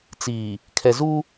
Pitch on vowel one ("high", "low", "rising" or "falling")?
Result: low